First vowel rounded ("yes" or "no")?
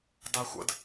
no